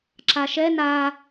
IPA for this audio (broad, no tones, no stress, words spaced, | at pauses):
ǁaʃɛ na